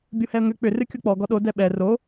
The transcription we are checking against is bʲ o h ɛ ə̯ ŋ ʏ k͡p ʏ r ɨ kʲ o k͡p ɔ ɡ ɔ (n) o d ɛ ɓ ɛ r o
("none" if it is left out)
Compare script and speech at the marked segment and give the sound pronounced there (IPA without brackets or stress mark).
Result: ɗ